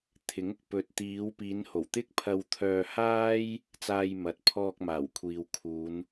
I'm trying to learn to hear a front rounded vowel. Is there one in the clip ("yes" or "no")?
yes